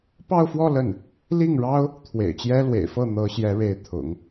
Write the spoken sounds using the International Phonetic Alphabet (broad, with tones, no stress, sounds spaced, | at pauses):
p ɑ˥˧ ʊ̯ f w ɔ˥˧ l ə˥˩ n | l i˥˩ ŋ ɻ ɑ˥ ʊ̯ | t̪ʰ w ḛ˨˩ ɪ̯ t͡ɕ j ɛ˥ l w ḛ˨˩ ɪ̯ f ɤ˥˩ n̪ ɤ˧˥ ɕ j ɛ˧˥ ɻ e˧˥ ɪ̯ t̪ʰ ʊ̰˨˩˦ ŋ